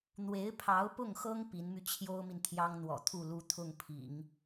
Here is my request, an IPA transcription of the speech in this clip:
n̪ w e˧˥ ɪ̯ pʰ ɑ˧˥ ʊ̯ p ʊ˥˩ ŋ x ɤ˥ ŋ p i˧˥ n m y˧ t͡ɕʰ j o˥ ʊ̯ m i˨ n t̪ʰ j ɑ˥ ŋ n̪ w ɔ̰˨˩ t̪ʰ u˥˩ l u˥ t̪ʰ ʊ˥˩ ŋ pʰ ḭ˨˩˦ ŋ

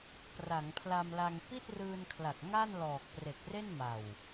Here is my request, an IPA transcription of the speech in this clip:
p r a˩˦ ŋ pʰ l a˧ m l a˧ ŋ p i˥˩ t̚ r ɯː˧ n kʰ l a˨˩ k̚ ŋ a˥˩ n l ɔː˨˩ k̚ p r e˨˩ k̚ r e˥˩ n m a˨˩ w

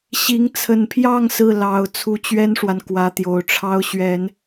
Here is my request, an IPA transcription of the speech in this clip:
ɕ i˧˥ ŋ t͡sʰ ə˨˩ n pʰ j ɑ˥˧ ŋ s ɹ̩˥˩ l ɑ˨˩ ʊ̯ t͡sʰ u˧˥ t͡ɕ ɥ ɛ˥ n ʂ w a˨ n k w ä˧˥ t̪ j o˨˩ ʊ̯ ʈ͡ʂʰ ɑ˥ ʊ̯ ɕ ɥ ɛ˨˩˦ n

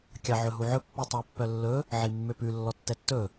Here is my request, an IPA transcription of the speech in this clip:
kʲ ɑ ʕ ɵ ɦ u ʕ ɵ pː u tˤ ɑ pː œ lː ɵ | ʕ i mː ø p ʉ lː ɔ tː ɛ tː ɵ

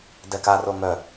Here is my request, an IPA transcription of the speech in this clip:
d ɛ k a r o ŋ œ

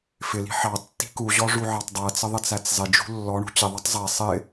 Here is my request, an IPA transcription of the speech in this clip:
f ɪ l i̤ ħ ɑ tː i̤ k u ʑ ɔ ʐ u ʕ ɑ tˤ dˤ ɜ t͡s ə ðˤ ɪ t͡s æ t͡s zˤ ɪ d͡ʒ ṳ lː ɔ ɳ ṳ t͡ɕ ɪ ðˤ ɑ tˤ zˤ ɛ sˤ ɪ

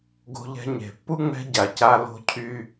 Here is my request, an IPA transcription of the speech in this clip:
ɡ o̤˦ ʎ ɛ̤˦ ɲ e̤˨ pː u˥ ŋ͡m ɛ̤˦ ɟ a˩ c a˦ l o̤˦ cʰ y˦

